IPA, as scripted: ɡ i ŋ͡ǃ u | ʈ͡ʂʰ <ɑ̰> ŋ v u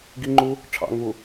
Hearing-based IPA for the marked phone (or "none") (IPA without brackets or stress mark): ɑ̰